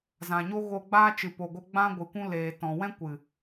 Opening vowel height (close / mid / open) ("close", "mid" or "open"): open